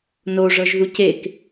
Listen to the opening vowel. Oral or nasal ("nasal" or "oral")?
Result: oral